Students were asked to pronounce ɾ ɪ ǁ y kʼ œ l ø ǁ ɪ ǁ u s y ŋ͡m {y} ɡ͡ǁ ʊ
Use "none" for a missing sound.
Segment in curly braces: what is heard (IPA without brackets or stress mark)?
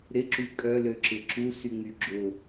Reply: y